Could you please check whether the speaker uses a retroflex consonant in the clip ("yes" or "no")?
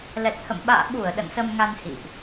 no